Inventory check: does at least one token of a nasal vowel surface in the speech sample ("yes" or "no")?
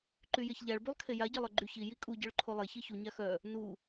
no